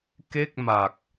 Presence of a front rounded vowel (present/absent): absent